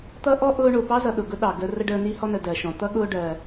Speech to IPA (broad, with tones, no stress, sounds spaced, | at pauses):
t̪ ʌ˥ ʔ ɔ˥ ʔ ʊː˦ ɳ ʊː˩ p ɑ˥ z ʌ˨ ɗ ʊ˩ ɡ ʊ˥ ɗ ɑ˩ ɡ əː˦ r ə˥ ɖ əː˦ n i˦ h ɔ˦ n ə˨ d ɜ˩ ʃ ɔ̃˩ t̪ ʌ˥ ɠ ʊː˦ ɖ ɜ˨